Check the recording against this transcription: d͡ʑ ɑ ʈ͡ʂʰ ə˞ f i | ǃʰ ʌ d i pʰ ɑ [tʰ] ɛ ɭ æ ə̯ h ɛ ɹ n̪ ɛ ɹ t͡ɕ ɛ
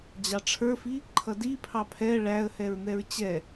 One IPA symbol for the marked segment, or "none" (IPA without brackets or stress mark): pʰ